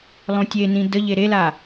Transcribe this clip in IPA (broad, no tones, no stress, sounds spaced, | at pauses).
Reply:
lˠ õ tʲ e n ĩ d ə ʎ e ɾ e l a